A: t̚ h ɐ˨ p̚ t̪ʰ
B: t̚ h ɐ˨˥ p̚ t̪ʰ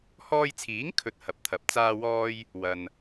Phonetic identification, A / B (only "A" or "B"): B